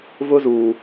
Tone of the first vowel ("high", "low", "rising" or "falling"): high